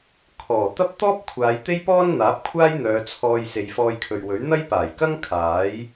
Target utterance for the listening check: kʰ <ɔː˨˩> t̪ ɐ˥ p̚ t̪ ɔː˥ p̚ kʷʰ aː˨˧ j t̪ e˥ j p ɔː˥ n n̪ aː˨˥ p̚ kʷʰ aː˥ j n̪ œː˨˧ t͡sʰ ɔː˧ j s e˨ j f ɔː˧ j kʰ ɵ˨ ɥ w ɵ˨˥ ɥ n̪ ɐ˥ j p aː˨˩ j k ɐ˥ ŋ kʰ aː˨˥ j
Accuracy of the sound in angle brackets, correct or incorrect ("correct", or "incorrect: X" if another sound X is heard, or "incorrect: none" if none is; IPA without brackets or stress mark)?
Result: correct